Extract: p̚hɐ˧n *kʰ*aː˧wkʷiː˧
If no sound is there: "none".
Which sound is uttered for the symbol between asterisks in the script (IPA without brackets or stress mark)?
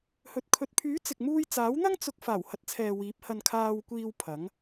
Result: kʰ